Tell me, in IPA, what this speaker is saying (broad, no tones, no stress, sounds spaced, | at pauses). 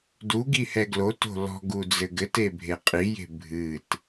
d u ɡ i h ɛ ɡ l o t o̤ l ɔ̤ ɡ u d͡z ɘ ɡ ɘ t e bʱ e qʼ i j e̤ bʱ ɨ t